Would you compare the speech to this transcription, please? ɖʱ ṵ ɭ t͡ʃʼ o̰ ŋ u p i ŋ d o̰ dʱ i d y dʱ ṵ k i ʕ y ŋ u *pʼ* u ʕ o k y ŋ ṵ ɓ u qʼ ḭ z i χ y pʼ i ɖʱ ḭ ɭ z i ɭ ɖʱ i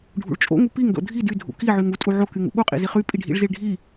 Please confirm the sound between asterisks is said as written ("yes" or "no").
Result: no